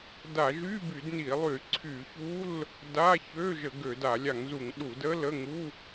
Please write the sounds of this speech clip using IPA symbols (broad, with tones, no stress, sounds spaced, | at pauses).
d a˧˩˧ ʒ y˧˥˧ b y˧˩˧ d n i˧˩˧ lˠ y˧˩˧ ǀʰ y˧˩˧ ç u˧˥˧ l | d a˧˥˧ ç ø˧˥˧ ʒ ə˧˩˧ ɡ ø˧˩˧ d a˧˩˧ lʲ a˧˩˧ ŋ z u˧˩˧ ŋ ɗ u˧˩˧ d ə˧˥˧ l ə˧˥˧ ŋ u˧˥˧